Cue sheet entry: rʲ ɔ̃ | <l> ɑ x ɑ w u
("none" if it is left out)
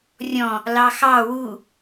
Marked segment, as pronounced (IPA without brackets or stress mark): l